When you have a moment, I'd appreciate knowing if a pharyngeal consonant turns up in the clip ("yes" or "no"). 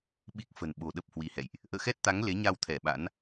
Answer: no